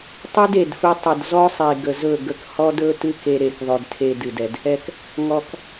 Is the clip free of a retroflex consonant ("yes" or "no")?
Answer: yes